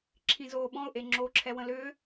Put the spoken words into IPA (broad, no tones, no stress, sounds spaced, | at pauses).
ǁʰ ĩ z oː ɓ ɔ̃ ʊ̯ ʔ e ŋ͡ǁ oː ǁʰ ɛ w ə̃ l ʏː